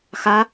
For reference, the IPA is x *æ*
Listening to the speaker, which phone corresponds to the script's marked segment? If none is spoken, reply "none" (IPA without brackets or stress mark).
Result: a